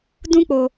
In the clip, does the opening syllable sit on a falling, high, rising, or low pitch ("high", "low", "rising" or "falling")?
high